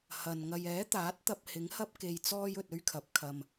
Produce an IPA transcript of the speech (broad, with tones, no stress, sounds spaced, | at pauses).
h ɐ˨ n ŋ ɐ˧ j ɛː˨˥ t̪ aː˨˥ t̚ t̪ ɐ˧ p̚ h ɪ˨˥ ŋ h ɐ˥ p̚ k e˨ j t͡s ɔː˧ j ɵ˨ t̚ ɵ˥ ɥ kʰ ɐ˨˥ p̚ kʰ ɐ˧ m